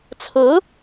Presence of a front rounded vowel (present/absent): absent